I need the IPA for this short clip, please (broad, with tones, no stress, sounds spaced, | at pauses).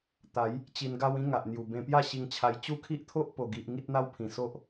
t̪ a˨˦ j | t͡ɕ i˧ n ɡ a˦ w ĩ˦ ŋ a˨ ʔ n̪ j u˨˩ b ẽ˧ p j a˥˧ ɕ i˧ ŋ t͡ɕʰ a˧ j t͡ɕ u˦ kʰ i˦ ʔ t̪ʰ o˦ ʔ p o˨˩ ɡ i˨ ʔ ŋ i˦ t̚ n̪ a˦ w pʰ ĩ˨˩ s o˦ ʔ